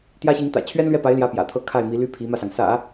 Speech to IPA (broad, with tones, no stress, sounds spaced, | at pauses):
t̪ j ä˥ ɕ i˧˥ ŋ t̪ ä̰˨˩ t͡ɕʰ ɥ ɛ˥ n l ɥ ɛ˥˩ p a˧˥ ɪ̯ l j ä˧˥ p j ä̰˨˩ t̪ʰ ɤ˥ kʰ a˥˩ ɪ̯ m i˧˥ l y˥ pʰ i˧˥ m ä˧ s ɑ˩ ŋ s ä̰˨˩˦